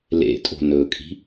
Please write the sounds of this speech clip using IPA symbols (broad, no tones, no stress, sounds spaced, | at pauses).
l ḛ tʼ o̤ n ɵ kʼ i̤